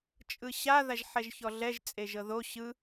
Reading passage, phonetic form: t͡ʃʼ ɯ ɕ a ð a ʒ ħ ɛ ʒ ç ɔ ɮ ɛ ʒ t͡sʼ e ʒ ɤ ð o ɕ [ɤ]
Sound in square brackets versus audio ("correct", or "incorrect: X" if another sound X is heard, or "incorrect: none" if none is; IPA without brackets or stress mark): incorrect: ɯ